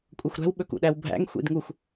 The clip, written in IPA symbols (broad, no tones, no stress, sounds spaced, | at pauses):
kʷʼ ɤ xʷ ɾ æ̤ w ɓ ɵ k ṵ ɗ æ w bʱ æ̰ ŋ xʷ ḭ d ŋ u xʷ